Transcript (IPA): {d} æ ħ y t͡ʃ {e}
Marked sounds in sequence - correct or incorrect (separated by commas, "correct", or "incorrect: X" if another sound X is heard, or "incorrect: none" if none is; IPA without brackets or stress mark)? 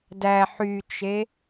correct, correct